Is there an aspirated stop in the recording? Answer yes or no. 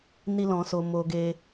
no